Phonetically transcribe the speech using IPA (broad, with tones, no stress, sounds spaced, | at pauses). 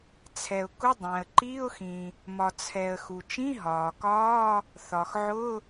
t͡sʰ ɛ˩ ʊ̯ k ʊ˧˥˧ dˤ æ̃˩ ə̯ ǃ i˧˥˧ ʊ̯ x ĩ˩ | m ɒ˩ t͡sʰ ɛ˩ ə̯ x u˩ t͡ʃ ĩ˧˥˧ ɦ ɒː˩ k ɒː˧˥˧ | θ ɒ˩ x ʕ ʊ˧˥˧